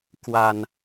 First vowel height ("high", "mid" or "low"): low